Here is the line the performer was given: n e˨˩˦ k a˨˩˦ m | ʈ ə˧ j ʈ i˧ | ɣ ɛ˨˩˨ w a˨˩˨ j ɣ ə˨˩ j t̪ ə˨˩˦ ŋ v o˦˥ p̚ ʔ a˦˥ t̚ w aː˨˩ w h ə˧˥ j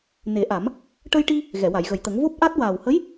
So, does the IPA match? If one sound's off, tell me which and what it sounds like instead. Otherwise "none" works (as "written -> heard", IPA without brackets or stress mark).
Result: k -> ʔ